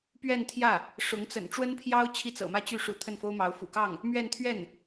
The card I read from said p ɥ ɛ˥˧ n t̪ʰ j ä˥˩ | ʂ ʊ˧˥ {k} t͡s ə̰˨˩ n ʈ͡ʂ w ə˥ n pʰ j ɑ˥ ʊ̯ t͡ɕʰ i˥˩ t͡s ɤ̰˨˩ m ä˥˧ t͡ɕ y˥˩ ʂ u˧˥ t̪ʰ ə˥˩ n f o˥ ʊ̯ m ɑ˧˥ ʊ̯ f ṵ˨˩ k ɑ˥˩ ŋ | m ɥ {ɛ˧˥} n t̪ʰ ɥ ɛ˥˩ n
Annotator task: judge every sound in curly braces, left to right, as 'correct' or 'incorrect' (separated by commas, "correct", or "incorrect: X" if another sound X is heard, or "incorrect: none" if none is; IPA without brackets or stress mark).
incorrect: ŋ, incorrect: ɛ˥˧